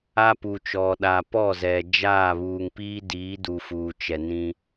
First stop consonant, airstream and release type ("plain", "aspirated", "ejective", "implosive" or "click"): plain